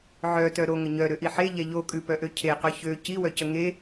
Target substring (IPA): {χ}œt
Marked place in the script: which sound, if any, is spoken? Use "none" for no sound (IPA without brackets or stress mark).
ʕ